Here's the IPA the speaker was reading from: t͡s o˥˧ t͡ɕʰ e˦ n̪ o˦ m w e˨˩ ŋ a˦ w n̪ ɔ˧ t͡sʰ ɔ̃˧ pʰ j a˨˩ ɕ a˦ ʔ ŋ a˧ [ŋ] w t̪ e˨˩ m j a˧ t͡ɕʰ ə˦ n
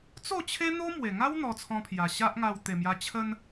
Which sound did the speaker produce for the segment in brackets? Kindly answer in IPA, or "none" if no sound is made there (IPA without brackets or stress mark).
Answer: none